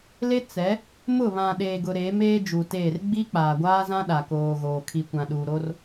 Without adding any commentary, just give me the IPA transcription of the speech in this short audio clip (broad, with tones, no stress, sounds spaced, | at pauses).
l e˦ t͡s ɛ˨˦ | m ʊ˦˨ β ã˨ ɗ eː˨ ɡ ʊ˨ ɾ eː˨˦ m eː˦ d͡ʒ uː˨ t eː˦˨ r ɡ͡b i˦ k͡p aː˨ ɡʷ aː˦ z ã˦ ɗ a˨ k oː˨ ɣ oː˨ kʰ i˨ kʷ ã˨ ɗ uː˨ ɾ o˦ r